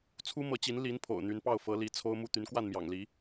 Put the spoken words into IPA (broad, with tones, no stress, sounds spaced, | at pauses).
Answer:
t͡sʰ u˥ m ɤ˧˥ t͡ɕ i˧˥ n l i˧˥ n pʰ o̰˨˩ ʊ̯ n̪ y˧˥ n p ɑ˥˩ ʊ̯ f ɤ˧˥ l i˧˥ t͡sʰ o˥ ʊ̯ m u˥˩ t̪ y˧˥ n k w a˥˩ n m j ɑ̰˨˩ ŋ l i˧˥